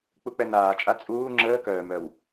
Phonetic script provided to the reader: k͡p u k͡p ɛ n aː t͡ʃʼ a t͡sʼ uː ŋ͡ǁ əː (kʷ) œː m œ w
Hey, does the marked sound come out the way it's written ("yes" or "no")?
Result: no